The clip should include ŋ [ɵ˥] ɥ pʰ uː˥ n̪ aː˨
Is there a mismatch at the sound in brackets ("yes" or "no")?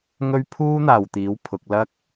no